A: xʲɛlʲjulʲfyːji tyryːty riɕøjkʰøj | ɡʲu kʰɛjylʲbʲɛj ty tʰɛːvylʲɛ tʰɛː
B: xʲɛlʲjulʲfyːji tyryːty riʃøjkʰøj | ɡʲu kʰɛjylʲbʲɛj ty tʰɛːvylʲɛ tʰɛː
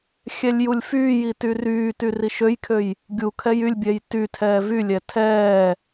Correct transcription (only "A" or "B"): B